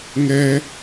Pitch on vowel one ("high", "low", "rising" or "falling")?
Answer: high